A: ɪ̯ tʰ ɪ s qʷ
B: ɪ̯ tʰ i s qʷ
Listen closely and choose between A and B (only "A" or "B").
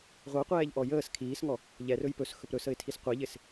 B